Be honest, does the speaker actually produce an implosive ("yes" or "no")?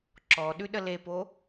yes